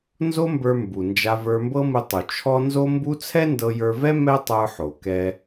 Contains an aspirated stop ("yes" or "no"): yes